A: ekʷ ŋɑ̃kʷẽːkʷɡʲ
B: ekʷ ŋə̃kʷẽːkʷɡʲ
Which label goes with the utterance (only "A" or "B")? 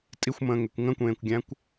B